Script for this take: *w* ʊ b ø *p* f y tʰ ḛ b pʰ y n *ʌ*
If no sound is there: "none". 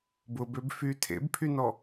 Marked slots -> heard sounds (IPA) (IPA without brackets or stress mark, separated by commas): b, b, ɔ